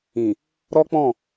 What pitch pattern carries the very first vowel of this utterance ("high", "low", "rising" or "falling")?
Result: low